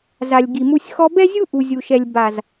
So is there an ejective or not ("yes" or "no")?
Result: no